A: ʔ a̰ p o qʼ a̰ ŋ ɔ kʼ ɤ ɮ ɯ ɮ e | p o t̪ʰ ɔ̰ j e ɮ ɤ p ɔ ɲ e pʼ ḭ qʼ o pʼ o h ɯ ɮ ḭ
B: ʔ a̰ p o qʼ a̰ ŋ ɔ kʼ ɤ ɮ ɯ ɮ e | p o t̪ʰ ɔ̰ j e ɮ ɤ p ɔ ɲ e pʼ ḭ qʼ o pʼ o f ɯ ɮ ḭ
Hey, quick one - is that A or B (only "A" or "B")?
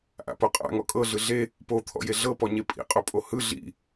A